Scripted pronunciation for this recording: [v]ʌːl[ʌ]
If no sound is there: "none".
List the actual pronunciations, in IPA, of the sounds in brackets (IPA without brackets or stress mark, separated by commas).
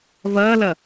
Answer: v, ʌ